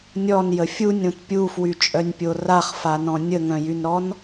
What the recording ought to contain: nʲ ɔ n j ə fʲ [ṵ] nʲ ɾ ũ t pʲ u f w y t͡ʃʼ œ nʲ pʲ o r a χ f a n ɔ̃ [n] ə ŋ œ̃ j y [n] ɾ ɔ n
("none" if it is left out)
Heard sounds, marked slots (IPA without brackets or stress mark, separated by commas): u, nʲ, n